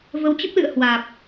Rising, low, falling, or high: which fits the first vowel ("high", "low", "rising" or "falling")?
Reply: rising